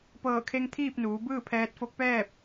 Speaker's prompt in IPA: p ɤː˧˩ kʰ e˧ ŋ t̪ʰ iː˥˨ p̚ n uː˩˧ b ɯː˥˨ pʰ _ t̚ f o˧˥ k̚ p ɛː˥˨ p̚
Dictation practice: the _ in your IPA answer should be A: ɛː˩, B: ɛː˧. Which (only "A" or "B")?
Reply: B